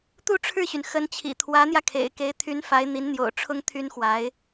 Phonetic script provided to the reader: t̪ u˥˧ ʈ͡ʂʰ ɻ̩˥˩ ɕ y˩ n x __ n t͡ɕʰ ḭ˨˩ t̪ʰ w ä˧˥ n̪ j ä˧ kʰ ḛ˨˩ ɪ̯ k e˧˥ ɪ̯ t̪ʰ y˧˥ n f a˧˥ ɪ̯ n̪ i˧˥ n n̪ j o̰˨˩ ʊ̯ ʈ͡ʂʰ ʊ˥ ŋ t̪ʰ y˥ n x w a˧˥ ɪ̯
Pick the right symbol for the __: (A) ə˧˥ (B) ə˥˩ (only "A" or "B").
A